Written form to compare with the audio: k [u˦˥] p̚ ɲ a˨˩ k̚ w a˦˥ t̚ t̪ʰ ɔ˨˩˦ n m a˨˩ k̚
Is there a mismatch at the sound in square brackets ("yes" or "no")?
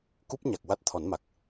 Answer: no